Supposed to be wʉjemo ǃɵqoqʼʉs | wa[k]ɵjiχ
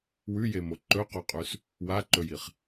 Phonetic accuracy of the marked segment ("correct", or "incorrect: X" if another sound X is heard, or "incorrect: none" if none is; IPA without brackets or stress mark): incorrect: ǃ